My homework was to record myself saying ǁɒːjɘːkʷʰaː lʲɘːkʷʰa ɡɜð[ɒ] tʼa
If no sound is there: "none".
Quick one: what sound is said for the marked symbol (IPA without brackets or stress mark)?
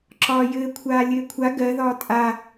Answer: ɒ